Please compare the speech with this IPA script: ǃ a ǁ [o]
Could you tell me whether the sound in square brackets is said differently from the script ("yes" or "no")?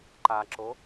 no